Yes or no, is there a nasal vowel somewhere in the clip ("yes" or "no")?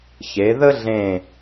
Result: yes